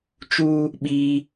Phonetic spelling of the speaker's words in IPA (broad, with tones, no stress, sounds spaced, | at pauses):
t͡ʃ u˦ | ɓ i˦